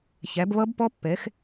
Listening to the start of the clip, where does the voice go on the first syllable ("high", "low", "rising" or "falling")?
rising